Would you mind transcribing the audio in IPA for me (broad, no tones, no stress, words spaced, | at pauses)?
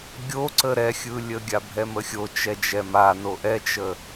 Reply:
ɡʲo ǀəɾɛxʲɯlʲə ɡʲabʱɛməxʲo t͡ʃɛd͡ʒɛma noʔɛt͡ʃə